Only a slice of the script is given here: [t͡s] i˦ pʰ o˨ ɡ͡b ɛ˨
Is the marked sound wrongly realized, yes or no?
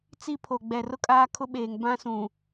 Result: no